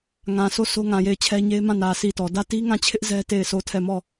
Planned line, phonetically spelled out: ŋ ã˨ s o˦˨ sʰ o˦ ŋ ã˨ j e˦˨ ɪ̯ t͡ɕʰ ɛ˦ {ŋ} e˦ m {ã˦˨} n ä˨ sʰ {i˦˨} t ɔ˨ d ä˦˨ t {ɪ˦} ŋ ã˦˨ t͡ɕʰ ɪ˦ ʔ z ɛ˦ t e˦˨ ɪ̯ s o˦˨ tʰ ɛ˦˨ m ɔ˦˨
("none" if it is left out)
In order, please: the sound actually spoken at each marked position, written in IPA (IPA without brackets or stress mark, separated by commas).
ɲ, ã˦˨, i˦˨, i˦